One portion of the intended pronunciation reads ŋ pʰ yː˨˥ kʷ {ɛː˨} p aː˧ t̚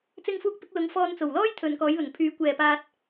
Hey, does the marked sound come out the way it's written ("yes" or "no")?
yes